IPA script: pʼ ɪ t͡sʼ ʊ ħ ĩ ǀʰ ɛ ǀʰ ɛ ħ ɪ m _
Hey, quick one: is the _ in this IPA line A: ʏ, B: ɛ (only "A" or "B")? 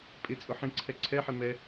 B